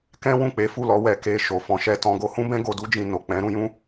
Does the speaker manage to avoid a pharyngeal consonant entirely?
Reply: yes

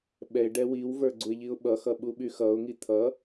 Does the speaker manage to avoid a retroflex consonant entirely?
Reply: no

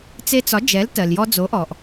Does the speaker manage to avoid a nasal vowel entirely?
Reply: yes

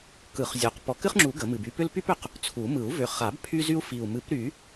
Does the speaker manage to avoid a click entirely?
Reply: no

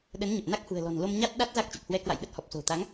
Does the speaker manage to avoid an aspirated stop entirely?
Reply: yes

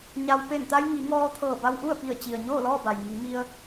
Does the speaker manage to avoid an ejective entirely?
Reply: yes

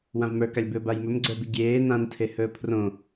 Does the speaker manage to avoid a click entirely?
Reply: no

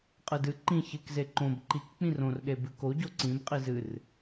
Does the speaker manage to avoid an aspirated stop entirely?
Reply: yes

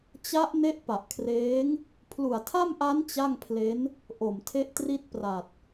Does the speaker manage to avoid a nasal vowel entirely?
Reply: yes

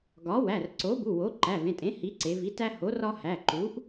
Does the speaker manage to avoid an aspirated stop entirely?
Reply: yes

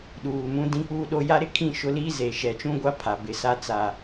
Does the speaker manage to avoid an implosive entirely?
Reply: no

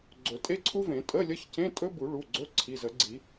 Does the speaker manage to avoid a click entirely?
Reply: no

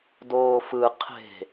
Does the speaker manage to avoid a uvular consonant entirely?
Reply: no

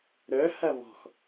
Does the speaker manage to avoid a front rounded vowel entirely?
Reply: no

